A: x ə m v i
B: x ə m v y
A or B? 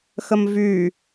B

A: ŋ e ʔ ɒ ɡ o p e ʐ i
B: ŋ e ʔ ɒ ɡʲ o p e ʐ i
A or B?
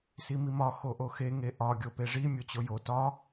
B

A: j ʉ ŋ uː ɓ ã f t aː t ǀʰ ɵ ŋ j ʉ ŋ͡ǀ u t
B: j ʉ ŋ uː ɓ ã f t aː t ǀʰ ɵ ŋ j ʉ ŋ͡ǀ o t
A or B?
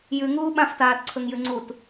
A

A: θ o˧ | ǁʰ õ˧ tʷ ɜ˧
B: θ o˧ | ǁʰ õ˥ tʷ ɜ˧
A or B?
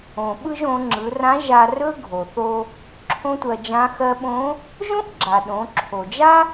B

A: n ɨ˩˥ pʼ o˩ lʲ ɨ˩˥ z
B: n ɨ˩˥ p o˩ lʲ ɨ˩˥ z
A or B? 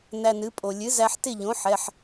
A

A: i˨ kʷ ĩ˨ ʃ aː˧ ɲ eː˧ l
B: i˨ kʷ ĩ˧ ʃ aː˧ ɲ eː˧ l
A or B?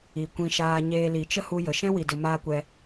A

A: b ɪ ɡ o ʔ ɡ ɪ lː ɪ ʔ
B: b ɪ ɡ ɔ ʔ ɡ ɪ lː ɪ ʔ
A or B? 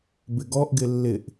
B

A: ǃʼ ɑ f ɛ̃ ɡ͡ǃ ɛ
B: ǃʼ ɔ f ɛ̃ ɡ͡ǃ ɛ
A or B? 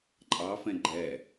A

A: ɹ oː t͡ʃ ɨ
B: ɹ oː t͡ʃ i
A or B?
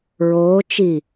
B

